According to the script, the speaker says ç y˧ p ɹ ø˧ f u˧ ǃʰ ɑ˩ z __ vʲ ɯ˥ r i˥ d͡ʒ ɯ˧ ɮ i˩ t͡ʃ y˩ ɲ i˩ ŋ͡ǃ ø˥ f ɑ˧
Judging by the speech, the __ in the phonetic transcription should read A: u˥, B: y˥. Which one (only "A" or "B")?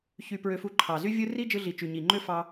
B